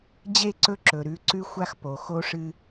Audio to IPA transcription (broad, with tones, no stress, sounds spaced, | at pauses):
d͡ʑ e˦˨ ǀ ɵ˦ ǁ ɵ˨ ɾ ʉ˨ ǀ ʉ˦ xʷ a˦ x p o˨ x o˦ ʂ ɨ˦